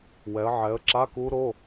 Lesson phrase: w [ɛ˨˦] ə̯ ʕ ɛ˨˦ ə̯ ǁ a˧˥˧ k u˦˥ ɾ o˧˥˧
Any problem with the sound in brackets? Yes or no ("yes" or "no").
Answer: no